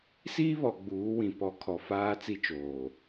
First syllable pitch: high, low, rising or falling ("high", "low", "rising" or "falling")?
high